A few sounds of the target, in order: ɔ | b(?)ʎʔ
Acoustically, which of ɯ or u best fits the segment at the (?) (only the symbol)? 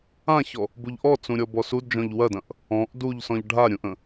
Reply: u